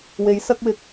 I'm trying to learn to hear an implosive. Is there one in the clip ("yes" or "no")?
no